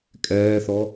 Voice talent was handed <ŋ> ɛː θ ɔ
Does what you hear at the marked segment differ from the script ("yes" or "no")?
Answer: yes